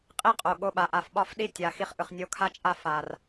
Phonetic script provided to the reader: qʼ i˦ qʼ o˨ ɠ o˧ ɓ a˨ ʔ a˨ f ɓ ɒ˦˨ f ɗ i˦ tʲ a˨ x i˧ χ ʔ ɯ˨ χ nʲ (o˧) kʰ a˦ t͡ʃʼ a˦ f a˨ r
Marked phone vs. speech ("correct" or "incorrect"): correct